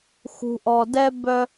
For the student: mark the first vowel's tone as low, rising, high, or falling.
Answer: low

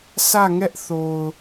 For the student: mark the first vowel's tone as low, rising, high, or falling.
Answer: falling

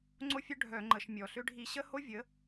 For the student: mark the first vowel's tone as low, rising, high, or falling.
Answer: high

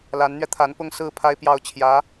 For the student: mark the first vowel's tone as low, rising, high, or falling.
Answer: rising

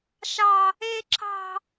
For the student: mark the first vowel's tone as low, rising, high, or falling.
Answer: high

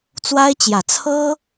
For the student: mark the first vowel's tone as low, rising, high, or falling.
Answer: high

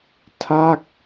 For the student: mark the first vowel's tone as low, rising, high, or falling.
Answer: falling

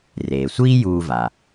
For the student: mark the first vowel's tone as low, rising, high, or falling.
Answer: low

